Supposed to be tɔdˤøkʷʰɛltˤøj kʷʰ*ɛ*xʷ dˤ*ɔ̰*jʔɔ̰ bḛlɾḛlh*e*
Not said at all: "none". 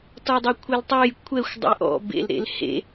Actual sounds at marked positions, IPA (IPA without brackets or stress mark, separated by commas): ɛ, ə̰, ḛ